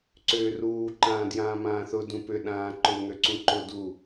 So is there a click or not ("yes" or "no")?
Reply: yes